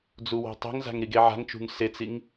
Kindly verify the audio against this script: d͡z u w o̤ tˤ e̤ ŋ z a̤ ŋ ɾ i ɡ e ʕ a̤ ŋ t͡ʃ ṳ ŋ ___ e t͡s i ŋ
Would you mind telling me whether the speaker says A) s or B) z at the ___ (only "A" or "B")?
A